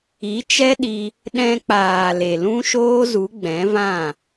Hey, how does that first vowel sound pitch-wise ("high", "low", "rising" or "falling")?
rising